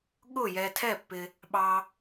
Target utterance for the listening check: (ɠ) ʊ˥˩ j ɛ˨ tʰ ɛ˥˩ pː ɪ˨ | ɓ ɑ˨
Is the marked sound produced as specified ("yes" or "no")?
yes